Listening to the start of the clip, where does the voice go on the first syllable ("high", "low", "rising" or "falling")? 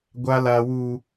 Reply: high